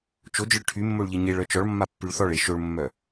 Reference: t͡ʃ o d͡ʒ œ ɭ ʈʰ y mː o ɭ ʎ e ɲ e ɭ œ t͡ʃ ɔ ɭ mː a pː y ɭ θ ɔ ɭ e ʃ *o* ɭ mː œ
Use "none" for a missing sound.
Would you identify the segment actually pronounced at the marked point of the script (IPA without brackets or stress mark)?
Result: o